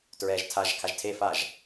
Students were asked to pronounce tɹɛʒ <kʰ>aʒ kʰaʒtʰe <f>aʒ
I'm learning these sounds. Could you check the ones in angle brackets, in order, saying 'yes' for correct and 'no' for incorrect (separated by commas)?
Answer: no, yes